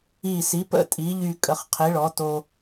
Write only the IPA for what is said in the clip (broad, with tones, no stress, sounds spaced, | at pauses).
i˧˩ s i˩˥ p ə̰˧˩ tʼ i˩˥ ʎ y˧˩ kʼ ə˩˥ χ qʰ i˩˥ ɭ ɔ˩˥ t o˧